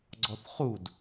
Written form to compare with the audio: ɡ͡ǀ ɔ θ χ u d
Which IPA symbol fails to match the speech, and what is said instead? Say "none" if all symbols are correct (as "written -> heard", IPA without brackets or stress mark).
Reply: none